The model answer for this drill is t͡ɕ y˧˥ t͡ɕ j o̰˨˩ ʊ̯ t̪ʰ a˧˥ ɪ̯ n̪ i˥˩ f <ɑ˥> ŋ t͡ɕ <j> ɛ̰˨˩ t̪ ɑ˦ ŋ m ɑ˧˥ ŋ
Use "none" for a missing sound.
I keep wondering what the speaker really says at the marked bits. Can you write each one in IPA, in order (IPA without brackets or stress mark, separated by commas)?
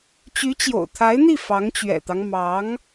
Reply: ɑ˧˥, ɥ